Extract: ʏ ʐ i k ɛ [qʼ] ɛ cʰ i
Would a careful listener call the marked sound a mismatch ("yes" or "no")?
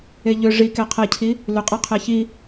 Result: yes